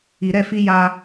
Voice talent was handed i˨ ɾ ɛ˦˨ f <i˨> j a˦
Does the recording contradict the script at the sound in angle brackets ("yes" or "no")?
yes